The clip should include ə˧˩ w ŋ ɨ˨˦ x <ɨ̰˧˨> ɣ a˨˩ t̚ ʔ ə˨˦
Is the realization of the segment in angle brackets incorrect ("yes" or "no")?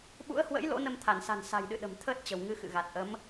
no